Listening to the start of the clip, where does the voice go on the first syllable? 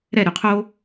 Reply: falling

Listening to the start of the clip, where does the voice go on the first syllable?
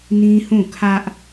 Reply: high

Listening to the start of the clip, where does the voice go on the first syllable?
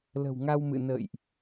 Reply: low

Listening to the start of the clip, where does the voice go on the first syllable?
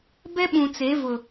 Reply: high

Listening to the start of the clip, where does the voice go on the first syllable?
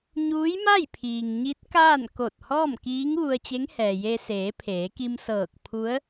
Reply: rising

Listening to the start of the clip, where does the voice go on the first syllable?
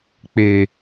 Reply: low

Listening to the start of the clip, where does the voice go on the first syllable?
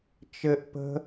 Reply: high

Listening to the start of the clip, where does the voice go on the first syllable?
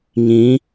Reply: rising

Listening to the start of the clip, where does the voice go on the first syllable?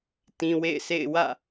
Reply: low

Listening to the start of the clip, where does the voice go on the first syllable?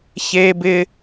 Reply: high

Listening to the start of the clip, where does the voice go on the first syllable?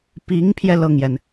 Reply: rising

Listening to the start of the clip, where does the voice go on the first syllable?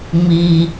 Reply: low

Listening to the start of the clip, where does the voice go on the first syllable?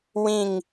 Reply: falling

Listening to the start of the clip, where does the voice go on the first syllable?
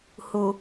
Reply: low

